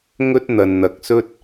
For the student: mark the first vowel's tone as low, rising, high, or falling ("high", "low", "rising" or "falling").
high